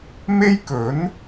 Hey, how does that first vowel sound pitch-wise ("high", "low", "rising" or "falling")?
high